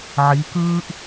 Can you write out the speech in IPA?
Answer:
ʕiː˨˥kɯː˥ʔ

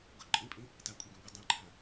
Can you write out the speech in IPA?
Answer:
ɡʊ ǃʼĩpʼĩ | takʷʼiɡĩ ɡʷə dˤẽǃʰã

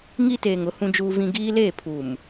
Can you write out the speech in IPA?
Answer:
ŋi˦teː˨ŋʊ˨˦ hũ˦d͡ʒuː˦vĩ˦ ɡiː˦leː˦˨ pʰuː˨m

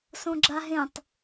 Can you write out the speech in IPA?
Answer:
sõɡ͡ǁa ɦẽtˤ

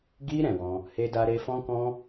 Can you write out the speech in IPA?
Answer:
ɡi˧ ɾɛ̃˨wɔ̃˧ | he˦da˦ɾe˦ fɔ̃˦kɔ̃˦

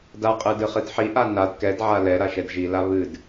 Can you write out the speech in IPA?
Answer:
daqʼɨdɨχɨd ħiʔa nad kɛdʕa lɛɾaʃɛd ʒila βɨd

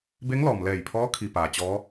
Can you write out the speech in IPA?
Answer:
be˧˥ŋlɔː˩mlɛː˧˩jpʰɔː˧˥ kʰi˧paː˩ t͡ɕɔː˧˥

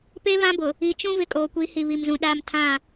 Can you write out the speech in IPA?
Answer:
pe˦ βã˦bʊ˨ | i˨t͡ʃũ˦ vɪ˦kʼoː˨kʷi˨˦hi˨ βi˨mzũ˨ ɗaː˦m tʰã˦˨

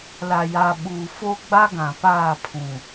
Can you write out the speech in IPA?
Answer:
la˨ja˨ɓuː˨fo˦ ɡ͡ba˦ɡã˨paː˦˨ pʰũ˨

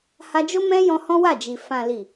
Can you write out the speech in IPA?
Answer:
ha˧d͡ʒo˦mɛ̃˦jɔ̃˧ hɔ̃˦wa˦˨d͡ʒi˨ fã˨li˨

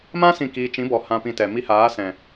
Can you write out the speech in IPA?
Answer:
mã˦ sĩ˦˨kiː˧ t͡ʃĩ˨˦bɔ˨ hã˧pĩ˧tɛ˨mi˦ haː˨˦sɛ̃˨

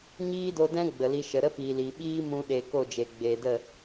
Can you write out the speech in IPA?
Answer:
ɲiː˦do˧dɛ̃˦ ɡ͡bə˨li˧ʃə˨ ɾə˦piː˨ li˨ ɓiː˦mũ˧ɗe˨ ko˦˨d͡ʒe˨ ɡ͡beː˨də˦˨

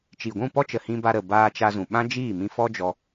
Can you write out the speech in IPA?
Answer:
t͡ʃi˨ɡʷũ˦˨pɔ˦t͡ʃə˨ hĩ˧ba˧ɾə˨ baː˧t͡ʃa˧zũ˨ ɓã˦d͡ʒiː˦˨mĩ˧ fɔ˦d͡ʒɔ˧

